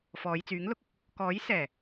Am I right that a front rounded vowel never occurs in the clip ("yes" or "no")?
no